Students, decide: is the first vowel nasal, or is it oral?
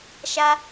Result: oral